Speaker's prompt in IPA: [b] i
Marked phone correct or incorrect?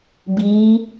correct